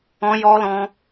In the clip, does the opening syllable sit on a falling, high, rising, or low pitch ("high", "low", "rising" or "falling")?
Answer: high